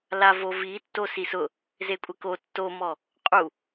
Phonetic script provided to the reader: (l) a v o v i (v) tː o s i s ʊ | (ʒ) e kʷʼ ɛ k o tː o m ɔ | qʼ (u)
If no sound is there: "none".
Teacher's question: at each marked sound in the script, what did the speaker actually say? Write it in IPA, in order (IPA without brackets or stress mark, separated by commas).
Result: l, none, z, u